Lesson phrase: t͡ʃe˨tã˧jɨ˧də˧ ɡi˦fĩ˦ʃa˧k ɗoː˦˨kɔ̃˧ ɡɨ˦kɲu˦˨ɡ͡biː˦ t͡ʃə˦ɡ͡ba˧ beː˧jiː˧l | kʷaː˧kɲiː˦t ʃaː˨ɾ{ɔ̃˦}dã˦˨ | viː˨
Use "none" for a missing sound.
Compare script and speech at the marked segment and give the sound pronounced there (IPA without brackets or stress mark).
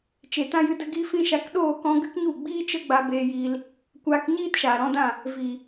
ɔ̃˧